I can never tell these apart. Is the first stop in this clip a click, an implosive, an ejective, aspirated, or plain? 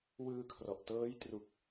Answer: aspirated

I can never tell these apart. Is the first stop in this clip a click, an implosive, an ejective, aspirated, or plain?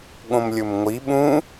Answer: implosive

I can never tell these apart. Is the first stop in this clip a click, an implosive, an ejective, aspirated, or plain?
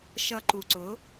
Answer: click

